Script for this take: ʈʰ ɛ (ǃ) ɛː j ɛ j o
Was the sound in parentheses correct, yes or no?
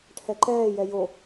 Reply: yes